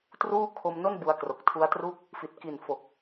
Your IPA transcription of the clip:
t r uː˥˩ kʰ o˧ m n o˥˩ n b u˧ a̯ k r o˨˩ k̚ tʰ u˦˥ a̯ t r u˥˩ k̚ | f i˨˩ t̚ k i˨˩ n f o˨˩ k̚

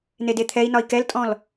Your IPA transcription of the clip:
n e d e t̪ʰ ɛ i̯ n ɒ i̯ k ɛ l tʼ ɔ̃ l

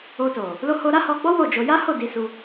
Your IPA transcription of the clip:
o˧ t o˨ | l o˦ h o˧ ɾ a˦ h ɔ˧ ɡ͡b ɔ˦ w o˦˨ d͡ʒ o˧ j a˦ h o˦˨ d i˨˦ s u˧

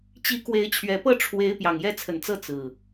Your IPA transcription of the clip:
t͡ɕ i˨˦ k w e˨˦ ɪ̯ t͡ɕʰ ɥ ɛ˨˩ p ɤ˥˨ ʈ͡ʂʰ w e˨˦ ɪ̯ p j ɑ˨˩ ŋ j ɛ˦ t͡sʰ ə˨˩ n t͡s ɤ˥˨ t͡s ɹ̩˨˩

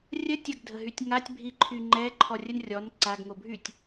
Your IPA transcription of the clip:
rʲ ə tʲ ə ɡ dʱ ə ɦ y tʲ ŋ a tʲ bʱ i ǃʰ y ŋ͡ǃ ɛ ǃʰ ɔ rʲ ə n rʲ ɔ n ǀ a ɡ ŋ o bʱ y tʲ

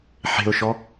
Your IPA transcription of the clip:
ħ e̤ ʊ̯ ʃ ɔ

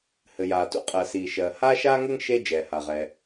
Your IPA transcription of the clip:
h ɘ˩ j aː˩ t ṵ˥ qʼ ɜ˩ s iː˩ ʃ ɜː˩ h aː˥ ʃ aː˥ ŋ ɘ˥ ŋ ʃ e˥ d͡ʒ ɛː˩ h a˩ ʁ ɛ˩

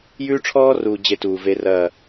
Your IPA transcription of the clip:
j ʉː˦ ʈ͡ʂʰ ɔː˦ r uː˨ d͡ʑ e˦ t uː˨ v e˦ r ɐː˦˨

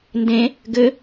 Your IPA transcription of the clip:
n d ẽ | ɡ ɘ

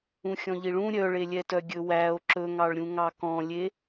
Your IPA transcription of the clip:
ũ xʲ ɔ̃ ʎ i ɭ ũ ɾʲ œ ɭ e lʲ ɛ t œ ɡʲ ɵ w æ o̯ ǁ ɵ ŋ ɑ ɭ ɾʲ ũ ŋ ɑ k ɔ̃ lʲ e

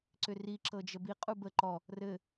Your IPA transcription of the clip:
ǀ ʏ r i ǁ ɤ d͡ʒ ə b i qʼ u b ə ǃ ɔ | r ɘ

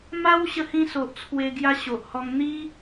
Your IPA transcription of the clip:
m a˦ w ɕ ə˧ h ĩ˧ s o˨ ʔ t͡sʰ w e˧ ɡ j a˧ ɕ o˨ ʔ h ɔ˧ ŋ n̪ i˦

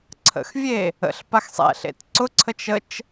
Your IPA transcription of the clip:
ǀʰ ə̰ x vʲ e | ə̰ ɬ p a x sˤ ɛ̰ ɬ ḛ t ǀ ʊ ǀʰ ə t͡ʃ ə t͡ʃ

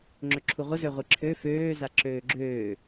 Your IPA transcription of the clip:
ŋ͡ǁ ø ǁʰ u ʁʷ ə z ø ʁʷ i ǁʰ ø f øː z a ǁ øː ɡ͡ǁ øː

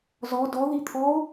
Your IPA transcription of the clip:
z ɔ d ɔ ð i t̪ʰ ɔ o̯

